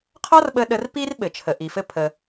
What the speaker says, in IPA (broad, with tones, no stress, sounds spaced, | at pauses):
qʰ ɒ˥ r ɓ ə˧ ɗ ə˧ r p i˥ r ɓ ɘ˩ t͡ʃʰ ə˩ ʔ i˩ f ɘ˧ pʰ ə˩